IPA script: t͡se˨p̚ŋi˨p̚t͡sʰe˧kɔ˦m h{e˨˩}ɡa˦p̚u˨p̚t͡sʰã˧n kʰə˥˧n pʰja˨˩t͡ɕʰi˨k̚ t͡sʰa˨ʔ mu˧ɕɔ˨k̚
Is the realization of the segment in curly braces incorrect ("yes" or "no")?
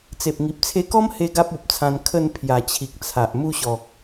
yes